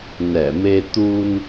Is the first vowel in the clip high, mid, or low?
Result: mid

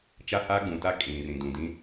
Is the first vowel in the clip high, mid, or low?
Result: low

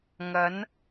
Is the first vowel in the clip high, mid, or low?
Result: low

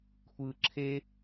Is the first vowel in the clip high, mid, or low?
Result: high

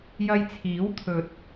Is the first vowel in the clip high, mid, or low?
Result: low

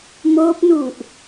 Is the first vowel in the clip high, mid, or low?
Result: mid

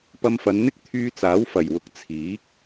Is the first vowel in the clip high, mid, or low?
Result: low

